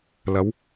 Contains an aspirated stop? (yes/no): no